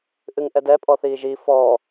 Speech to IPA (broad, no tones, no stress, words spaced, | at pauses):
ʔɨŋʔɛdɛ pʼɔθiːʒi fɔː